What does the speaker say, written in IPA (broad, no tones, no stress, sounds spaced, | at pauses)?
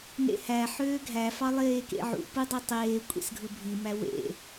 n ḛ h æ ħ øː ɡʱ æ f ɑ lˠ eː k ḛ ʕ ṵ p ɯ dˤ e tˤ eː kʷʼ ḛ s ɡʱ ɯ bʱ i m æ w ḛ